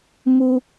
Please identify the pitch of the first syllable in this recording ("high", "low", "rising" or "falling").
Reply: high